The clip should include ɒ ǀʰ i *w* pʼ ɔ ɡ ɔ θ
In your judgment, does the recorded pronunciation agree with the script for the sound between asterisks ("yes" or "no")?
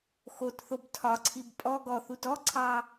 no